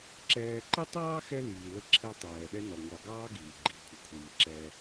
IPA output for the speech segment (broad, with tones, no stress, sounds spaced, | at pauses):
ǁ ɛː˦ ǃ ɛ˥ tˤ ɑː˥ x ɛ˦ l iː˨ l ə˦ ǁʰ ɛ˦ tˤ ɛː˩ ɗ ɛ˦ n ɔ˩ ŋʷ ɑ˨ ɡ ɑː˦ ɡ iː˩ ɡ͡ǃ i˩ kʷʰ ə˩ kʷʰ iː˩ ǁ ɛ˨